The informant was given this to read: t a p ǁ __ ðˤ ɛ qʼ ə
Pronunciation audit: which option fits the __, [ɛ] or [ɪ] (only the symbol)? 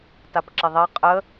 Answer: ɪ